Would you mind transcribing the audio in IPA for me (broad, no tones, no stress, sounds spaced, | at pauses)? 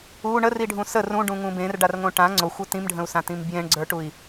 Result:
u ɳ ə r i ɖʱ ũ s ə r ũ ɖ ũ ŋ ũ b ẽ r ɖ a r ŋ õ ʈ ã ŋ͡ǀ o xʷ o t ĩ m ɖʱ ə̃ u̯ s ã t ĩ m b j ẽ ɳ ɡ͡ǀ ə˞ ʈ u i̯